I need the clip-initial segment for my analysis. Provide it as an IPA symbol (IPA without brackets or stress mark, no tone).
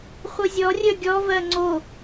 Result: χʷ